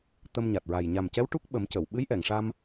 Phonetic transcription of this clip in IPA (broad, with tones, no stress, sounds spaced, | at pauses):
t̪ ə˧ m ɲ a˨˩ t̚ ɹ a˨˩ j ɲ a˨˩ m c ɛ˧˥ w ʈ u˦˥ k̚ ɓ ə˨˩˦ m c ə˨˩˨ w ɓ ɨ˧˥ j ʔ ɛ˨˩˨ ŋ ʂ a˧ m